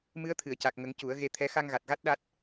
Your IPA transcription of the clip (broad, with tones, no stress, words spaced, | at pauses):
mɨ˧˥ə̯t̪ʰɨ˨˩˨ə̯ca˨˩k̚ŋə˨˩˦ŋ cu˨˩˦ə̯ ɣe˧t̪ʰɛ˧˥ xa˧ŋɣa˨˩t̚ɣa˦˥t̚ ɗa˦˥t̚